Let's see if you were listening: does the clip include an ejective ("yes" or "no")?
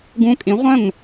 yes